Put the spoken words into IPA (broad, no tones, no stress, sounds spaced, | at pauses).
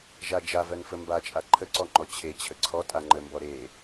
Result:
ʒ a d͡ʒ a v ɜ n f ə m b a t͡ʃʼ a ǃʰ ə ǀ ɔ ŋ͡ǃ ɔ t͡ɕʰ e t͡ɕʰ ə ǀʰ ɔ tʼ a ŋ͡ǃ ə m b ɔ ɾ e